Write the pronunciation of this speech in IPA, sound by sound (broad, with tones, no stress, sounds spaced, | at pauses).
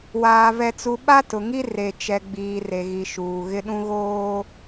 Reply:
w aː˨ v ɛ˨ t͡s u˨ ɓ a˦ t ʊ˨ ŋ i˦ r e˨ t͡ʃ ɛ˨ ɡ͡b iː˨ r e˨ ɣ i˨ ʃ uː˨ ɣ ɪ˦ ɗ ũ˦ ɣ oː˦